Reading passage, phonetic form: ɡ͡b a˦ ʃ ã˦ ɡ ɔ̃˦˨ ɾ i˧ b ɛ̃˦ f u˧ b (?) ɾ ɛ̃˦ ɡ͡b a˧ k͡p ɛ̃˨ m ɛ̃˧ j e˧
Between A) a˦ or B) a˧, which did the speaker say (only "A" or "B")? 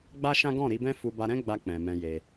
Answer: B